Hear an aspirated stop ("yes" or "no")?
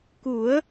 no